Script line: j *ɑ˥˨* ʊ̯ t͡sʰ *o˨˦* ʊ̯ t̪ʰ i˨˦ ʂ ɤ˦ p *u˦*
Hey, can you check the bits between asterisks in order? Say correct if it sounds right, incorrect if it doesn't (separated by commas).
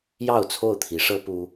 correct, incorrect, correct